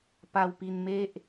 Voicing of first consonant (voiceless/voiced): voiceless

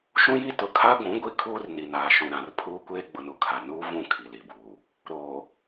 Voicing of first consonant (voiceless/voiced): voiceless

